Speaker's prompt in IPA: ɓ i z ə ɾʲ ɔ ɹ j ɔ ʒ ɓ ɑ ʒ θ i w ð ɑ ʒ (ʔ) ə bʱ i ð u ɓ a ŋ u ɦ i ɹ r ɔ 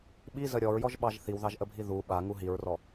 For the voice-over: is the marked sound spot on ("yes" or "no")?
yes